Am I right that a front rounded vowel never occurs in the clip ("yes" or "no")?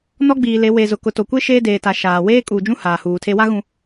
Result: yes